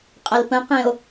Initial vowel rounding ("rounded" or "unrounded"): unrounded